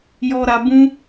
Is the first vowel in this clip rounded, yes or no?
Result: yes